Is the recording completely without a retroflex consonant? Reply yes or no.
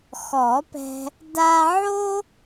yes